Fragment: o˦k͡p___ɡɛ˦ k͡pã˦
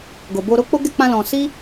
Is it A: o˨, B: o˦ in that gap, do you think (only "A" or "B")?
B